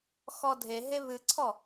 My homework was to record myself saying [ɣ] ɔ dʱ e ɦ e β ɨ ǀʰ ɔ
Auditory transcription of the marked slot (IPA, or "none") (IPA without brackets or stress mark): x